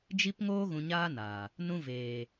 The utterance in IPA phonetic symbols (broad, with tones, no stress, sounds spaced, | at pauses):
d͡ʒ i˧ p ŋ oː˧ ɣ ũ˨ ɲ aː˧ n aː˨ | n ũ˧ v eː˨